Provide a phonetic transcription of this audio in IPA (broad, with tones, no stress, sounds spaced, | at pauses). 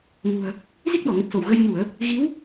ŋ ṳ˨˩ ə̯ | z i˦˥ k̚ ɗ ɔ˧˩ ŋ ə˨˩ t̚ s o˧˩ w ɣ ə˧ j ɲ u˧˩˨ ə̯ | ɣ i˨˦ w